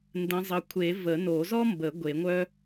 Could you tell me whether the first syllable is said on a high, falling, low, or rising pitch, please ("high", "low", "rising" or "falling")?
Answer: rising